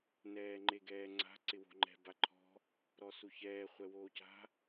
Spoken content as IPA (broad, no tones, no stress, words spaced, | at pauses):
nɛːŋ͡ǃeɡɛːŋ͡ǀa̤ ǀɪwo̤ŋ͡ǃɛ̤ baǃʰɔ̤ | ɾɔsuçɛː χʷɛwoːca̤